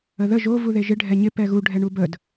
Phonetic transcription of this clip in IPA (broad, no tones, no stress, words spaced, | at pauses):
əðə ʒo vuðeʒɪ ɖʱɛɲɪ pɛɣu ɖʱɛɳubəd